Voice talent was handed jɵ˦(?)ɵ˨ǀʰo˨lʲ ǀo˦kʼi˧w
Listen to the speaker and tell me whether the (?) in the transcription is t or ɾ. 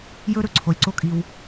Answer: ɾ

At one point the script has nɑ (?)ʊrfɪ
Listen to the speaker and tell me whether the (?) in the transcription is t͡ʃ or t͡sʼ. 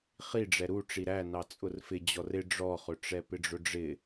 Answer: t͡sʼ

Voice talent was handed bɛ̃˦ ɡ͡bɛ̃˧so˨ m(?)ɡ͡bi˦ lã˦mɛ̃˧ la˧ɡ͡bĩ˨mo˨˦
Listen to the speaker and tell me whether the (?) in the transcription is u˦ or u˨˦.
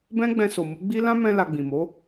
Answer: u˨˦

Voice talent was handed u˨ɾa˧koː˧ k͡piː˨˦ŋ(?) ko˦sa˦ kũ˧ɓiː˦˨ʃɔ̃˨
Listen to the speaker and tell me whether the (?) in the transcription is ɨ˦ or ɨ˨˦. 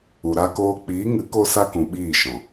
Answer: ɨ˨˦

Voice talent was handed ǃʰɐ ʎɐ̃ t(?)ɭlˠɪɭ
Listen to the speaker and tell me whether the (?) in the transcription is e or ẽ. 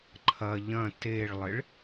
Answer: e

